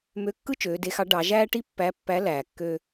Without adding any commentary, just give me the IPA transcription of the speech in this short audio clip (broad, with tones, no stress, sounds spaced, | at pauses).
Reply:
m ø˧˥ kː ɯ˥ t͡ʃ øː˩˧ d e˧˥ x ɑ˧˥ ɖ ɑ˩˧ ʒ æː˥ ʈ i˥ pː æ˧˥ pː æ˧˥ l æː˩ kː ø˧